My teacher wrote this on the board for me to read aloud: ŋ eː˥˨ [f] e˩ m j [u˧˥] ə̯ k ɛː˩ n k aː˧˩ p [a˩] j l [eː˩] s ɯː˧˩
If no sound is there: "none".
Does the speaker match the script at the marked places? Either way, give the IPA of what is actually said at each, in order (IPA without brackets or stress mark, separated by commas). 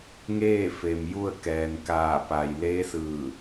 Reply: f, u˥˨, a˩, eː˧˥